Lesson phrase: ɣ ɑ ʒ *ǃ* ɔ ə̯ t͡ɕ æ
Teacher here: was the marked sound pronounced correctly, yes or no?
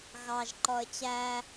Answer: yes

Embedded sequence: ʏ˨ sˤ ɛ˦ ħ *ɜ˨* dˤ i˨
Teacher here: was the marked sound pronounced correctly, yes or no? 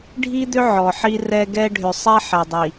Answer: no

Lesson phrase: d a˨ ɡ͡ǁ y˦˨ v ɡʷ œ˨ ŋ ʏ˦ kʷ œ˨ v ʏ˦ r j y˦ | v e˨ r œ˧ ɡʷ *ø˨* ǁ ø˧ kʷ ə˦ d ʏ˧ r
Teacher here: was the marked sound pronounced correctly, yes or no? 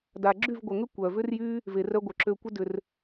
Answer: no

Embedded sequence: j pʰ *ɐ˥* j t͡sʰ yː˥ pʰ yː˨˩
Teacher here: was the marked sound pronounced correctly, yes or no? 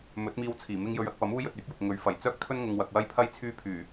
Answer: yes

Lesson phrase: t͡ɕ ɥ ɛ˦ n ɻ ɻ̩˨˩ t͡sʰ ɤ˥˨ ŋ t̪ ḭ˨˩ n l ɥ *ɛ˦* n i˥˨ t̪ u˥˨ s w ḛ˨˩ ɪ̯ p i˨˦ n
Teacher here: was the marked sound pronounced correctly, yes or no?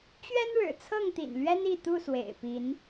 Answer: yes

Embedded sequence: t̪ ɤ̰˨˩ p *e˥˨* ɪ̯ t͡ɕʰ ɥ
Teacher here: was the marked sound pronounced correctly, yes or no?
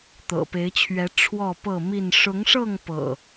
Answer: no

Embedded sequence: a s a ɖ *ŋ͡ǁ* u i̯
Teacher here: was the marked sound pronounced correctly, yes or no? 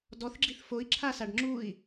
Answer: yes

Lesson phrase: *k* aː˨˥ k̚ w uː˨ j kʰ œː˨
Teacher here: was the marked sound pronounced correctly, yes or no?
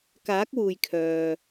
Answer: yes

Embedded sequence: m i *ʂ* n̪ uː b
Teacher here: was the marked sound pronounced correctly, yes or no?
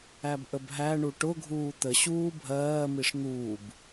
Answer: yes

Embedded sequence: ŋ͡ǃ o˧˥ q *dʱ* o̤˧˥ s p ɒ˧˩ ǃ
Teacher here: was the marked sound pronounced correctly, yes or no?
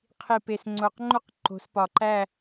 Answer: no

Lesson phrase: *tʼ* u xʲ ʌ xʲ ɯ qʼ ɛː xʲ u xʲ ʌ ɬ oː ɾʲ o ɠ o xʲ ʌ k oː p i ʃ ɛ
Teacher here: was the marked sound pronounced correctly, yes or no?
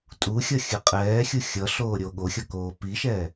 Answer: yes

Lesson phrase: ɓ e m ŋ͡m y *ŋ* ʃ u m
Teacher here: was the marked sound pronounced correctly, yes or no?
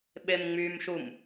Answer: no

